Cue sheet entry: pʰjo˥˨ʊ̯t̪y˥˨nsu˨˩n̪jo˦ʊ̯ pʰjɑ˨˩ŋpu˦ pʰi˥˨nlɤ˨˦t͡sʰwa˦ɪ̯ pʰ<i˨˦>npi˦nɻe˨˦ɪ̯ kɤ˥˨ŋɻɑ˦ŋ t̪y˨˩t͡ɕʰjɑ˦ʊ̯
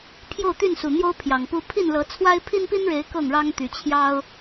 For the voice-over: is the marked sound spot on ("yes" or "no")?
no